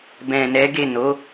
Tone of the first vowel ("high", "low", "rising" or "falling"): low